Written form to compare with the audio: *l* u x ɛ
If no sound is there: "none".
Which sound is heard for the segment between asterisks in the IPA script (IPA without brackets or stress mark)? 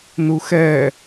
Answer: n